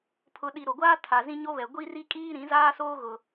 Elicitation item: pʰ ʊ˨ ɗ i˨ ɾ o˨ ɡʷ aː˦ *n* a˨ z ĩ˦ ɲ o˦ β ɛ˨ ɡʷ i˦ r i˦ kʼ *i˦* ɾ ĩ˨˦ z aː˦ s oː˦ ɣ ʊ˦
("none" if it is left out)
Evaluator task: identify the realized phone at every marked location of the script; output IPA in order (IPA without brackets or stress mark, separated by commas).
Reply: tʰ, iː˦